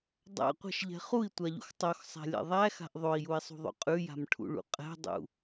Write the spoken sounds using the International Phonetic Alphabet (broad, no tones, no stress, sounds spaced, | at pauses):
dˤ a̰ qʷ ɛ̤ ʃ ʎ ɛ̤ χ u i̯ tʷ a ʎ ṵ x tˤ o x sˤ æ̤ lʲ ɛ̰ ðˤ æ x a̤ ʔ ðˤ o i̯ j u i̯ sˤ ṳ ðˤ o̰ qʼ ʉ j a̤ m ʈʰ ṵ ɭ ṵ qʼ ɛ̤ dˤ ṵ